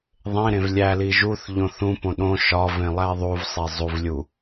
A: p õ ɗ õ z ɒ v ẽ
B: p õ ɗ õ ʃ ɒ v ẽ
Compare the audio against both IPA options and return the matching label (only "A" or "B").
B